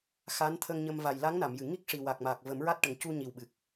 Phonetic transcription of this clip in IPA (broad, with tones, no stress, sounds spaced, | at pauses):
x a˧˥ n t̪ʰ ə˧ ŋ ɲ ə˧ m v a˨˩ j l a˧˥ ŋ n a˨˩˨ m j ɨ˨˩˨ ŋ i˦˥ k̚ ʂ i˨˩ w a˨˩ k̚ m aː˨˩ k̚ v ə˨˩˦ m ɹ a˦˥ t̚ ʈ ə˨˩˦ ŋ c u˧ ɲ i˨˩ w ɓ ɨ˨˩ k̚